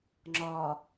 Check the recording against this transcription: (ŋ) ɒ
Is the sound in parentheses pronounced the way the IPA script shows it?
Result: no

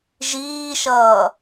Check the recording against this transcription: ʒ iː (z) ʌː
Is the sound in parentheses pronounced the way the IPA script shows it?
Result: no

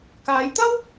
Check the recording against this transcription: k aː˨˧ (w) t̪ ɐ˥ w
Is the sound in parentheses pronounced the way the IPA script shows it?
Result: no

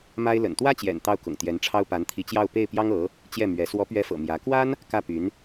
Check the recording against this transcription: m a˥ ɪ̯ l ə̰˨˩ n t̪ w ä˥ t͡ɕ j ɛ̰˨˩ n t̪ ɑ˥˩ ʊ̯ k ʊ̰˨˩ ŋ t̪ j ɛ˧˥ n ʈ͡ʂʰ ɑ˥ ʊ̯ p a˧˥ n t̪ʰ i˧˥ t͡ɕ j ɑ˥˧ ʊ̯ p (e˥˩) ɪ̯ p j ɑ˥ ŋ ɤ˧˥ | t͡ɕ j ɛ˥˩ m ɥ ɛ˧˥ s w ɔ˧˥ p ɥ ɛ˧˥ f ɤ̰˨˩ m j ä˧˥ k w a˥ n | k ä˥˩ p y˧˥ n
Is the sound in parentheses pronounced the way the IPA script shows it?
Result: yes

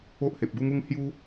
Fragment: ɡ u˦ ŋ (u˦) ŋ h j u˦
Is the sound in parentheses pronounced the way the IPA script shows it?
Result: yes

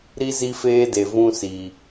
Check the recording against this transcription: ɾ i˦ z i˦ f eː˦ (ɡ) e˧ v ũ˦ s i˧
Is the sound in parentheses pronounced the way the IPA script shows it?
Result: no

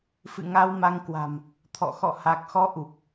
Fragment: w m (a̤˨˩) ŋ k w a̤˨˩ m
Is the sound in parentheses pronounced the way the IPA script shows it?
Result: no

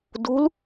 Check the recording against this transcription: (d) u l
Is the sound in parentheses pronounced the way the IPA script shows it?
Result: yes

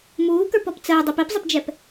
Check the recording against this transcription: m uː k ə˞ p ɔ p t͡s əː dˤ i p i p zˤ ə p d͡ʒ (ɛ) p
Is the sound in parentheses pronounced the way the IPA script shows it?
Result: yes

